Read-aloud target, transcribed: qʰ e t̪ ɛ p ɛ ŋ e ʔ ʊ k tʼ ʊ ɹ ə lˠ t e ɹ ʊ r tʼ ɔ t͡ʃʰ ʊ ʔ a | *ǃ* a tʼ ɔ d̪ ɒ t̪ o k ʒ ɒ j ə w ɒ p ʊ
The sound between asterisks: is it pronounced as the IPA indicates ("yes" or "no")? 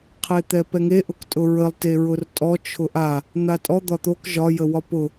no